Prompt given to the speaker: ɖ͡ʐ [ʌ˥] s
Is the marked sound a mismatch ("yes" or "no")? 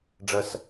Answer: no